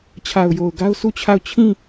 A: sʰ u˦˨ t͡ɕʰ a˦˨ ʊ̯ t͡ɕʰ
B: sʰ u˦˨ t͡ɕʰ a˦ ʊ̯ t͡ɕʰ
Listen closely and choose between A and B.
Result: A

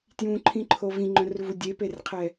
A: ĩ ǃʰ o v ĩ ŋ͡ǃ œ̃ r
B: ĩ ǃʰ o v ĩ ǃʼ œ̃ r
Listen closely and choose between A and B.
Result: A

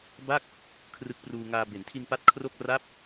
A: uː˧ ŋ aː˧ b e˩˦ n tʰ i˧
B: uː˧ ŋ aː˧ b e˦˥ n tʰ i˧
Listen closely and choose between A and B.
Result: A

